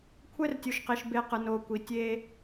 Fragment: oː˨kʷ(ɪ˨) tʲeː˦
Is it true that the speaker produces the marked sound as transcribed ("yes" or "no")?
no